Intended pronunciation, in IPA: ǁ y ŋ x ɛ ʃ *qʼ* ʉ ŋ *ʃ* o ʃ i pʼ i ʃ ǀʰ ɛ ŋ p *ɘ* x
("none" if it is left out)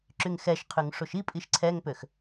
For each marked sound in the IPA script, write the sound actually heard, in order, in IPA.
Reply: qʰ, ʂ, ø

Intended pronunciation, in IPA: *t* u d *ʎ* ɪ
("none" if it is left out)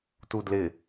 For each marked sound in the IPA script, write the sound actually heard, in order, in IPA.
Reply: t, l

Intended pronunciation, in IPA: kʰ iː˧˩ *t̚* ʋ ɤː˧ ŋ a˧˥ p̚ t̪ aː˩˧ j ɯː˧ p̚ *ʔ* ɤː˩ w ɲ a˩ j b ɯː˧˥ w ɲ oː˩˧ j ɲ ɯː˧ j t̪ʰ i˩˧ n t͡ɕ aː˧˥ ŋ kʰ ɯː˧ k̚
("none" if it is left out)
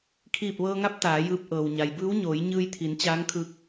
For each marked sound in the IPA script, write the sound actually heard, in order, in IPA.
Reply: p̚, ʔ

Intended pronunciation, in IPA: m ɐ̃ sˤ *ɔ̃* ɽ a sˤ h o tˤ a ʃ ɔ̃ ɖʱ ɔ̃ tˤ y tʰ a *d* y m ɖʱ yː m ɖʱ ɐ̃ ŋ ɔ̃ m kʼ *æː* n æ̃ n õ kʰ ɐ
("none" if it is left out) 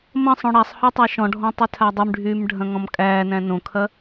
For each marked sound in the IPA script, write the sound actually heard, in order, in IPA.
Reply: õ, dˤ, æː

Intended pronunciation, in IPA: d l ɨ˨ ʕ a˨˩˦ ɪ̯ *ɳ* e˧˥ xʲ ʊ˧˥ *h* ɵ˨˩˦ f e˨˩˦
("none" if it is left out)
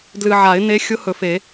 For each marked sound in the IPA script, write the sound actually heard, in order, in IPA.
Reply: n, h

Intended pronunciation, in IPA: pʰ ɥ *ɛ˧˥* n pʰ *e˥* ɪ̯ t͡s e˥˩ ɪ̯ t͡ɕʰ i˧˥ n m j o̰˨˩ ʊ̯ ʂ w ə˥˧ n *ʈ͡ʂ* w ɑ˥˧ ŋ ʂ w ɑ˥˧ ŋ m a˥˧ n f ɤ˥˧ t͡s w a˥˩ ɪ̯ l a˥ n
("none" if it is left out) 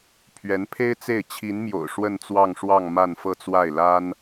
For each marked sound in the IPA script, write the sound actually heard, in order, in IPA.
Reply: ɛ˧˥, e˥, t͡s

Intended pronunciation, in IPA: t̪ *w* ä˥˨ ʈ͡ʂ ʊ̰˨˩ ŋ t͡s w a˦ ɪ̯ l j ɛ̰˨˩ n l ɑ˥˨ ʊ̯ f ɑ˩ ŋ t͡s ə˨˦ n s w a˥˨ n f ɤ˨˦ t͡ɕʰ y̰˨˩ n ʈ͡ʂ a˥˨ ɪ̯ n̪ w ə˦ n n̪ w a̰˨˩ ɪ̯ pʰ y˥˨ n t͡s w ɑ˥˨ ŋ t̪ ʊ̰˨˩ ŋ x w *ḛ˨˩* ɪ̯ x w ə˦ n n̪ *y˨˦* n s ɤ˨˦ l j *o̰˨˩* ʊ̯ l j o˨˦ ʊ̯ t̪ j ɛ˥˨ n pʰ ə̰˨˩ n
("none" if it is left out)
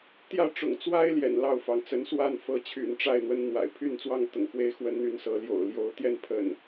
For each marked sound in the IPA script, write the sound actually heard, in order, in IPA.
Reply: j, e˦, y˥˨, o̰˨˩

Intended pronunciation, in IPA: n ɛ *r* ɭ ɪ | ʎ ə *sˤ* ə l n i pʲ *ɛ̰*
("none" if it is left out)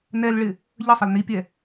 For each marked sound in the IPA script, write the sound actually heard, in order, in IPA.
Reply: l, sˤ, ɛ

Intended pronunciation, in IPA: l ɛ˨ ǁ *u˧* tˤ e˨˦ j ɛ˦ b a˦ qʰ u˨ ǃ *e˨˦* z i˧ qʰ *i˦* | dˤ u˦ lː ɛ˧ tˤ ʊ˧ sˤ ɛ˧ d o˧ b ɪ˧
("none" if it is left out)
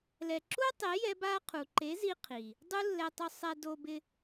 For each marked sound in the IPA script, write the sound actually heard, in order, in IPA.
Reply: u˦, e˨˦, i˨

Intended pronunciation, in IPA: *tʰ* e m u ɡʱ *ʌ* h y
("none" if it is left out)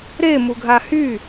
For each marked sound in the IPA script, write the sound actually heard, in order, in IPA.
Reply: ɾ, a

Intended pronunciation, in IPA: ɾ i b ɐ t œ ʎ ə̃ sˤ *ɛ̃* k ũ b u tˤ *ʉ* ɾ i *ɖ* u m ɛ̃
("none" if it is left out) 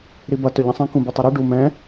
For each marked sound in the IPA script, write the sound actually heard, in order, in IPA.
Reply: ɛ̃, ʉ, ɖ

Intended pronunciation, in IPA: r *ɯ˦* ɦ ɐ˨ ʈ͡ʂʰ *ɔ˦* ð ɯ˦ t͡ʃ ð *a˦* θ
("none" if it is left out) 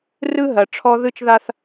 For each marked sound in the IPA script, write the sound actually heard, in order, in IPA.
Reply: ɯ˦, ɔ˦, a˦

